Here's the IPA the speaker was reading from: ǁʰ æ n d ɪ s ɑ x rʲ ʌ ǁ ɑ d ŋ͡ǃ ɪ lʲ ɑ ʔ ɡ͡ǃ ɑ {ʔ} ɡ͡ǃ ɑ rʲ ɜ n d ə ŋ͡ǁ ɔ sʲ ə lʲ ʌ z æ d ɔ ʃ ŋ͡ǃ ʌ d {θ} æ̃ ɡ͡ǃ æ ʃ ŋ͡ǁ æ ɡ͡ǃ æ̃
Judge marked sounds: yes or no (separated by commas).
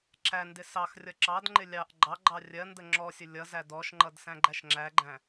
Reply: no, no